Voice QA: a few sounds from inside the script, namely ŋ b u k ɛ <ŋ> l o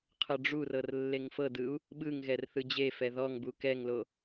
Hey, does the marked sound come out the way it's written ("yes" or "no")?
yes